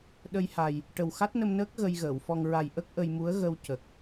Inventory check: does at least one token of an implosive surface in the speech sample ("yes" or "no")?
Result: yes